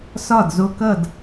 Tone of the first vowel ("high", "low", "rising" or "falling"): falling